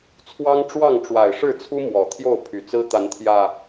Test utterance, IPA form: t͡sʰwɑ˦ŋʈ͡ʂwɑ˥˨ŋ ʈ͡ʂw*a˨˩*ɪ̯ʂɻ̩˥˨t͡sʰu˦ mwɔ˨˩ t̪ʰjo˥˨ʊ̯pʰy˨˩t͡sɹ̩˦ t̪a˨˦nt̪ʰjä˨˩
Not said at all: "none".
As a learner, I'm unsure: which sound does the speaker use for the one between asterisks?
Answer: a˨˩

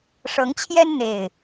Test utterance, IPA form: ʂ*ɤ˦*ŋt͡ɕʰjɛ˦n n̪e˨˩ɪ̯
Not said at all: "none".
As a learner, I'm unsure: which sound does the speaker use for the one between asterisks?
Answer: ɤ˨˦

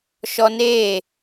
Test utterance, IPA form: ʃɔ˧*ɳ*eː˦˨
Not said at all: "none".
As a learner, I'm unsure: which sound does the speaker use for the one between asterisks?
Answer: n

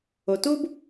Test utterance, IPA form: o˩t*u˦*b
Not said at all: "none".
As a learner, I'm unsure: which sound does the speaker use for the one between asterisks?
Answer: u˦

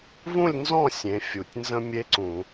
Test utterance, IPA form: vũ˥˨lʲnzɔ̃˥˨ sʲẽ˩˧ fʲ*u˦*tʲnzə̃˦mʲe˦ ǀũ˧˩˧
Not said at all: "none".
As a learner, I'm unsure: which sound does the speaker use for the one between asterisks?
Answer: u˩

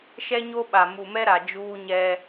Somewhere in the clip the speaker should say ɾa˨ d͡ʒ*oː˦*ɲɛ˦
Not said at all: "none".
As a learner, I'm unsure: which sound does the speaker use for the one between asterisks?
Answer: uː˦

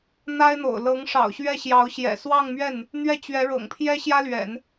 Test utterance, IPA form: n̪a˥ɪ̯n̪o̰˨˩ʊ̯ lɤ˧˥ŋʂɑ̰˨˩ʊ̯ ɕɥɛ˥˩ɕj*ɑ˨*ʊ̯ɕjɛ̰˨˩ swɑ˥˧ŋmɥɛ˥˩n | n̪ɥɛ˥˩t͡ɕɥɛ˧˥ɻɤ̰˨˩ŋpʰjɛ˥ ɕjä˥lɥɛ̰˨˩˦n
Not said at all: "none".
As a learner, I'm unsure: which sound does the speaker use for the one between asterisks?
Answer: ɑ˧˥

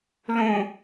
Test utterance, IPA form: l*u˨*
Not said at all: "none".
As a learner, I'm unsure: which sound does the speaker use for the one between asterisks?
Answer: ũ˨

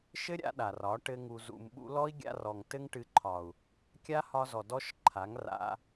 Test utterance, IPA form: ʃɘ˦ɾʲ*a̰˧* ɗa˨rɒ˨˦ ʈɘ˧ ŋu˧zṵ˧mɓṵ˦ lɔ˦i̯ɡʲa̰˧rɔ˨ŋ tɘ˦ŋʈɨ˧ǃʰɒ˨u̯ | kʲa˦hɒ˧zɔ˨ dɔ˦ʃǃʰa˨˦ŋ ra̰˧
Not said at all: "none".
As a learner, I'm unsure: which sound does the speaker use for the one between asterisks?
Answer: a̰˧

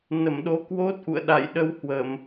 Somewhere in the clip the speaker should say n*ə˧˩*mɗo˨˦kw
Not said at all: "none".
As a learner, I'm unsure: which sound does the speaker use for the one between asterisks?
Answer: ə˧˩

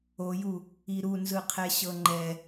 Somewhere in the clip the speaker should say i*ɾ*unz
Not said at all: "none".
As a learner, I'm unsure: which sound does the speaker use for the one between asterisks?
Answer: ɾ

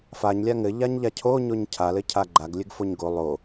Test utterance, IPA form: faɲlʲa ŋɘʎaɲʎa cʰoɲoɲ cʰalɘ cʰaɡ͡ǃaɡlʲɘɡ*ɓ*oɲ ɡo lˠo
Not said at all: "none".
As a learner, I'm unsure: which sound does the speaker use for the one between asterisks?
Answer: f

